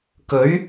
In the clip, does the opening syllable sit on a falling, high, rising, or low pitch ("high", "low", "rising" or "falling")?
rising